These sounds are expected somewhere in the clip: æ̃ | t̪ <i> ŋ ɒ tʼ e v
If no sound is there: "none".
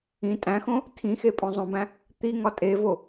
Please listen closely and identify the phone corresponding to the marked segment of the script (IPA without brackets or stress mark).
i